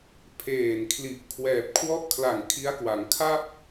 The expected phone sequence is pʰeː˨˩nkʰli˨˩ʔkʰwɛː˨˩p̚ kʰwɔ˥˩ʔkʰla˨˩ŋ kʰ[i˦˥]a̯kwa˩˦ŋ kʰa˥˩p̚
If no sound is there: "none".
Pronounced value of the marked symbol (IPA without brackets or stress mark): i˦˥